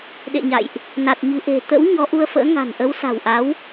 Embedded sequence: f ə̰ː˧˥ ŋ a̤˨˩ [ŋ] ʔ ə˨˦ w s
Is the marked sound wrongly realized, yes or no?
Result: yes